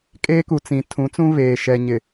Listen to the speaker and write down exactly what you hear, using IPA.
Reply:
kʼeː˦ku˨t͡sĩ˨ tʰũ˨˦t͡sũ˦βeː˨ ʃɛ˨ɲɪ˨

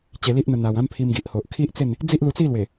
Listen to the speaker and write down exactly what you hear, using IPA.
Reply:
t͡ɕe˧li˦ʔn̪ə˧ n̪a˨˩w ã˦mpʰi˧mɡi˨ʔho˨ʔ kʰi˦ʔt͡se˥˧n | d͡zi˦ʔlu˧t͡si˥˧lwe˨˩

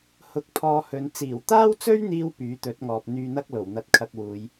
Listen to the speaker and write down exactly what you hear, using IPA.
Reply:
hʊ˧k̚pʰɔː˧hɵ˨˧n t͡siː˨˩wt̪aː˥wt͡sɵ˥ɥn̪iː˧w pyː˨˥t̪ɵ˨˥t̚ŋɔː˨p̚ n̪yː˧n̪ɐ˥k̚lo˨˩w n̪ɐ˧t̚kʰɐ˧k̚wuː˨˧j

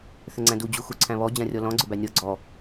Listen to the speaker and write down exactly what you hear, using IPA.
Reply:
θʏŋ͡ǀæ̃du d͡ʑuxuǀʰæ̃βɔ d͡ʑãrʲɔlɔ̃ ɡ͡ǀʏbænʲɔ ɡ͡ǀɔ

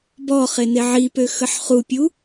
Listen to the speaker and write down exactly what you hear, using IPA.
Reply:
bɔ χeneʕipø xəħχupʲu

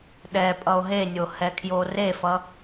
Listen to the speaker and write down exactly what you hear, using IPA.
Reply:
ɗɛ pʼʌo̯ɦenʲo hɛkʰjorefʌ

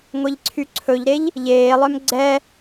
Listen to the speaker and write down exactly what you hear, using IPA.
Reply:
ŋʷeʎǀʰyǀʰɵʎɾeʎ | ʎeːlˠœm ɡ͡ǀɛ

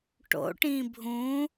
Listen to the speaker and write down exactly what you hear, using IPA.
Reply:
ʈo̰ʈĩ bʱũ

